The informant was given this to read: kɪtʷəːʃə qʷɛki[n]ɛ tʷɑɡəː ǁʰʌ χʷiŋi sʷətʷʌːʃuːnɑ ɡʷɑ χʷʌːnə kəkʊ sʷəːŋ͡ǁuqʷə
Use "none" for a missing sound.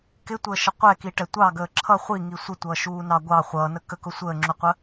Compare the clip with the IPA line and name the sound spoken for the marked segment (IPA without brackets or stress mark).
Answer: ʈ